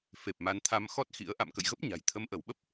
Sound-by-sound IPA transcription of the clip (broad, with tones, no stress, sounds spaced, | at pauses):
f e˨˩ p̚ m a˨˦ n t̪ʰ a˧ m x ɔ˦˥ t̚ x ḭ˧˥ ə̯ ʔ a̰˧˨ m k ə̰˧˨ j ɣ ə˦˥ p̚ ɲ a̤˨˩ j t̪ʰ ə˨˦ m ʔ ə˧˩ w ɓ ə˦˥ p̚